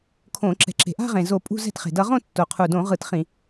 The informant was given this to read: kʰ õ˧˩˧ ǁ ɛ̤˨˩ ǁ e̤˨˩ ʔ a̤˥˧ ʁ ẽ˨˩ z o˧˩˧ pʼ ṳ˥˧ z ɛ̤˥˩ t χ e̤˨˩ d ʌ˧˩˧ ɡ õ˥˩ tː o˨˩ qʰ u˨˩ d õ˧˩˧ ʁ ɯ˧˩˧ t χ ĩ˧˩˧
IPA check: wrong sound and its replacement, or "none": ɡ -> ʁ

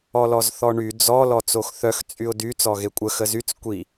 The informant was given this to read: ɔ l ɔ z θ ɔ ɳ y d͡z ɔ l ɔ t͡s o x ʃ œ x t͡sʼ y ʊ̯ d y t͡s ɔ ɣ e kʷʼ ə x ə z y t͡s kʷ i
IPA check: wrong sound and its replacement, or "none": ʃ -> θ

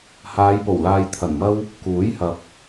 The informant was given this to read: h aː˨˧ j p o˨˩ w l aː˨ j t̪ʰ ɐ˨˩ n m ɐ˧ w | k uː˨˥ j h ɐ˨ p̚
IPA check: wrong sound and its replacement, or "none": none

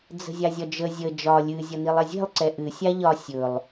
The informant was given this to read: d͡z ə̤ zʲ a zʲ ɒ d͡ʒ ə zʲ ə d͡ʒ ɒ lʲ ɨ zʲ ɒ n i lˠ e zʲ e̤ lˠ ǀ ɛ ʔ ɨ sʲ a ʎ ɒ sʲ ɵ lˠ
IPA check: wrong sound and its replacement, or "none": none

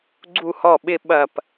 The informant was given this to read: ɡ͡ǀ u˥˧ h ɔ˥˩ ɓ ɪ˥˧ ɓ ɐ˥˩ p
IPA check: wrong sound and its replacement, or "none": none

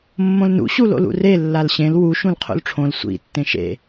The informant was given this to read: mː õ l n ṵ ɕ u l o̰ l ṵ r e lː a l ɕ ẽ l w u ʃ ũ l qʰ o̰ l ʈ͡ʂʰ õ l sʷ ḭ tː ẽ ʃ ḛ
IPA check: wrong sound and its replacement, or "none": none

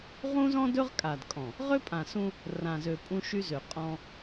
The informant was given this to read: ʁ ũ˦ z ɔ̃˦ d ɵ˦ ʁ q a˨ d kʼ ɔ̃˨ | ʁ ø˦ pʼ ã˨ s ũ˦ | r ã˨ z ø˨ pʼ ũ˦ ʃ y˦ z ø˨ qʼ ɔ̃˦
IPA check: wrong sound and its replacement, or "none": q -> kʼ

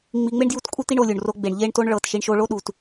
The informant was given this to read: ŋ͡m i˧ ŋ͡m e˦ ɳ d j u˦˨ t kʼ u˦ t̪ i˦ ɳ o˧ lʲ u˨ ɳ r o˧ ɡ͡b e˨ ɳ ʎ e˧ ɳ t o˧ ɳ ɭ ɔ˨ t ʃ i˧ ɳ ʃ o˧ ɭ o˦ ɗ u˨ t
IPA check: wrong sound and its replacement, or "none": ɔ˨ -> ɤ˨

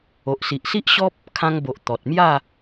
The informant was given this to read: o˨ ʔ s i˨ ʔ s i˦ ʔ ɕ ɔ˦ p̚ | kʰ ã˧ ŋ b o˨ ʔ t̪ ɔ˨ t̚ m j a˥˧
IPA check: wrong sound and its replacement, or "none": none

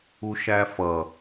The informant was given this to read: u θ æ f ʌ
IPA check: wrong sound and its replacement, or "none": θ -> ʃ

